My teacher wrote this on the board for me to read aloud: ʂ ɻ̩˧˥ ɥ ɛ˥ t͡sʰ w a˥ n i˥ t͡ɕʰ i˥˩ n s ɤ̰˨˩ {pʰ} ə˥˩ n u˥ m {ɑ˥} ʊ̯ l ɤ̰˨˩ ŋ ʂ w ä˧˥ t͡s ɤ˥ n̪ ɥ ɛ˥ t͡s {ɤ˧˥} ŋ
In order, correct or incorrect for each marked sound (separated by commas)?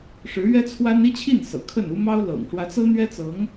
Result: incorrect, correct, correct